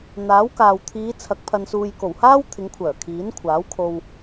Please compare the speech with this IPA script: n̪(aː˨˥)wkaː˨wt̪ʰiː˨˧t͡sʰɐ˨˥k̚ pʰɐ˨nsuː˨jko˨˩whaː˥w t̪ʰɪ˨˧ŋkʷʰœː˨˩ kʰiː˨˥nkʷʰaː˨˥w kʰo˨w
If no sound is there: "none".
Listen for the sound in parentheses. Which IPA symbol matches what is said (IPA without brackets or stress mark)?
aː˨˥